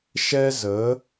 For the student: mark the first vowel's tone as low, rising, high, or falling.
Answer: high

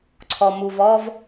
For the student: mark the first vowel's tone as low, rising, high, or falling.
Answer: low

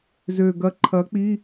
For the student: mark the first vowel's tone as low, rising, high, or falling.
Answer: low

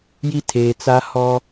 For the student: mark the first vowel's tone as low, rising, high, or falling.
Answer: high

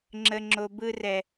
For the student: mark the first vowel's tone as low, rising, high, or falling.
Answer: high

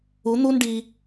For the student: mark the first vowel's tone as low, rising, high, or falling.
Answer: rising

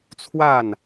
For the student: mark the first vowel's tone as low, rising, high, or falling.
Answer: falling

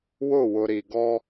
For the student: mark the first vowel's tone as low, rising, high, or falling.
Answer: falling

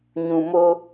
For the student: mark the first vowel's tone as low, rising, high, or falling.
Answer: low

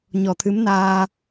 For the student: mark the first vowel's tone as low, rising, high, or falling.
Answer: low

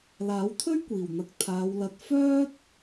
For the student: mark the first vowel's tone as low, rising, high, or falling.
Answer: rising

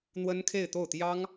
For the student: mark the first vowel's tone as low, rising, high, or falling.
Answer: high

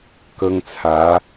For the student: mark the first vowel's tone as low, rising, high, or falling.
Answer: high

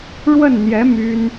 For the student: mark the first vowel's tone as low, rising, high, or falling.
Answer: falling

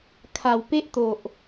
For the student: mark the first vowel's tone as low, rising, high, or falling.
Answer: low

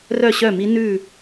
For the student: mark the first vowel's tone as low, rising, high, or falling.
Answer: falling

